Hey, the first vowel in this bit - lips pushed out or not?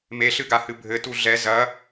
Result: no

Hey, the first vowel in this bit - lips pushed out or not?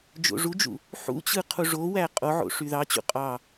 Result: yes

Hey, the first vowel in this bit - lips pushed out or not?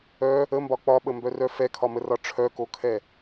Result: yes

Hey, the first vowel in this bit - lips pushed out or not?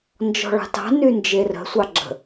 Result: yes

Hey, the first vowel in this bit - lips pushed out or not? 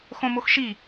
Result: yes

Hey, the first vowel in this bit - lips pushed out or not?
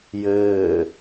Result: no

